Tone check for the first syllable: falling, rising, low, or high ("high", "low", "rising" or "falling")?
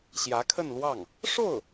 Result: rising